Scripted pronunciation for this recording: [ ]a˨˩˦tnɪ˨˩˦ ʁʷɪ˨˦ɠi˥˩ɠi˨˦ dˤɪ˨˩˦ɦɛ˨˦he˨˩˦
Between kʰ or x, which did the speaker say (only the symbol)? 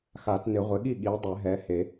x